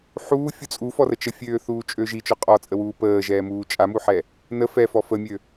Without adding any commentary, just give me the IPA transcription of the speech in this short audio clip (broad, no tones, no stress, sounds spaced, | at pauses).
ħ uː fʲ u t͡sʼ u f ɔ r ə t͡ʃ ə fʲ øː θ uː t͡ʃʼ ø ʒ i t͡ʃ ɔ qʼ ɔ t͡sʼ ə w uː p əː ʒ ɛː m uː t͡ʃʼ a m u ħ ɛ | n ə f ɛ f ɔ f ə mʲ ø